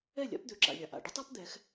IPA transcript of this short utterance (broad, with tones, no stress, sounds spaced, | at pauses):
ɛ˥˩ lʲ a̰˩˥ p d̪ ø˩ ǁ a̰˩ lʲ a˩ ʔ a̰˩ ɖ ə˥ tˤ a˥ p d̪ ɛ˩˥ x